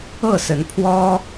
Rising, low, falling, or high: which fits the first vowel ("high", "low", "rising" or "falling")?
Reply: falling